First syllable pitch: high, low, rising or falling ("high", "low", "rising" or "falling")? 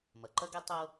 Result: low